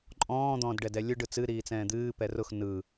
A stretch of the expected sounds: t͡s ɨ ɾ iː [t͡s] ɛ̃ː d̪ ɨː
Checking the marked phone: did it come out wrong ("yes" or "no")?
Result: no